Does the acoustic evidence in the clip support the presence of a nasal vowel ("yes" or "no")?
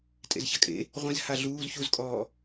yes